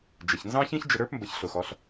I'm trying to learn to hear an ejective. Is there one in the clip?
no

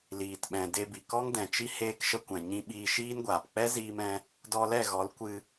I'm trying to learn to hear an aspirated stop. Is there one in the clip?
no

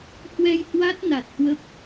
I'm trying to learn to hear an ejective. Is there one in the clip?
no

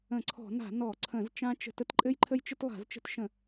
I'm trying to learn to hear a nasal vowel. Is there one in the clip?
yes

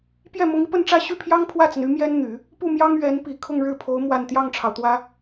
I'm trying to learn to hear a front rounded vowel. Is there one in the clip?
yes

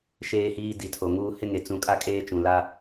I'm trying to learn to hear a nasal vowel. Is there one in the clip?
yes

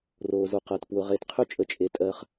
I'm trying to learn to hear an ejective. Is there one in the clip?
yes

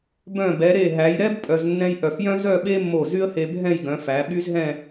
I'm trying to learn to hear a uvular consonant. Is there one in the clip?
no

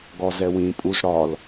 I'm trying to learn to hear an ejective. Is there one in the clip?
yes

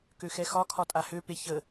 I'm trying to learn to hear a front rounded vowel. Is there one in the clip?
yes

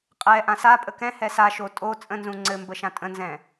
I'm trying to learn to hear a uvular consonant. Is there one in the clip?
yes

